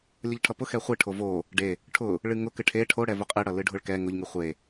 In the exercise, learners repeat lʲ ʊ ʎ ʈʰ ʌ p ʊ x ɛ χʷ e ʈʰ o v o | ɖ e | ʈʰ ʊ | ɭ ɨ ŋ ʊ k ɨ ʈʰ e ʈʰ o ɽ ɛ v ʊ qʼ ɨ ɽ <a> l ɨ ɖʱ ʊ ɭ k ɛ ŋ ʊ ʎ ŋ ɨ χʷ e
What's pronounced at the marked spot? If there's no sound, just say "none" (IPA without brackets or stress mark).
ʌ